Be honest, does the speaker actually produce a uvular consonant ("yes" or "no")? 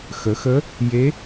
no